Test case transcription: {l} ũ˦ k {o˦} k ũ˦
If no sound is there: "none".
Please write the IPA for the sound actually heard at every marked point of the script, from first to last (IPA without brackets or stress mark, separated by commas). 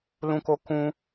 l, o˦